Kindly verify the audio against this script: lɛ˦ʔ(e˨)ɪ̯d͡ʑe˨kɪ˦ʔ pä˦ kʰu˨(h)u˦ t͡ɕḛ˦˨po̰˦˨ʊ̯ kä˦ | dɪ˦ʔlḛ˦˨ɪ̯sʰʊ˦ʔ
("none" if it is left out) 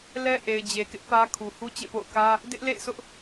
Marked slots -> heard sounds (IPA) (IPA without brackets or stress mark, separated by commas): e˨, h